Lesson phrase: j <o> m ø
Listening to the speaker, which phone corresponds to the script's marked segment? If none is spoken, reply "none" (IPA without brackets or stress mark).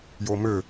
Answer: o